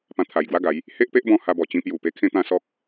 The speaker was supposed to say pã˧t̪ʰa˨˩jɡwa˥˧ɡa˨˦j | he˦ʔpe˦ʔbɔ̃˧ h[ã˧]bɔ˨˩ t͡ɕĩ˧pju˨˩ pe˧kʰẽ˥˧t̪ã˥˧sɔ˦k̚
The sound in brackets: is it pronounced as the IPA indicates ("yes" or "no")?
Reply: no